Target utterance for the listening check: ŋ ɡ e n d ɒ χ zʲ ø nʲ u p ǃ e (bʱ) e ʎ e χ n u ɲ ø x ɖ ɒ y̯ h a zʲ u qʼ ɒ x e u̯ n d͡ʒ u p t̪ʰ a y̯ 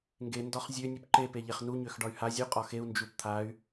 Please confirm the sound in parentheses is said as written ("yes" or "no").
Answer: no